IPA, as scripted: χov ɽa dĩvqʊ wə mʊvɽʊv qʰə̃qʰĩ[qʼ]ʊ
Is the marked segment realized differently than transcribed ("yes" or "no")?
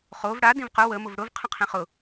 yes